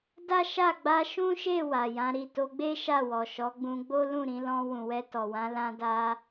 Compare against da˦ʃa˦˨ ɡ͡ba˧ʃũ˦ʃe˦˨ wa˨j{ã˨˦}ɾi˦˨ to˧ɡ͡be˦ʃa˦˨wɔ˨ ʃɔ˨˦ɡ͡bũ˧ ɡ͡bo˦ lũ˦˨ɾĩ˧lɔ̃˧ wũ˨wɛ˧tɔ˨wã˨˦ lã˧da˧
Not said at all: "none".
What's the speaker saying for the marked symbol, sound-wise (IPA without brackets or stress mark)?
ã˨˦